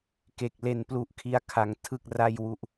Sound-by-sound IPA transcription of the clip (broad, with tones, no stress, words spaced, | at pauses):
ke˨˩k̚le˧n plu˦˥ʔkʰi˦˥a̯ kʰa˧ŋ tʰɯ˥˩k̚ ra˥˩jwu˥˩ʔ